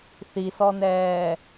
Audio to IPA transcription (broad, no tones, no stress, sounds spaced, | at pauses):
θ i s ɔ n ɛː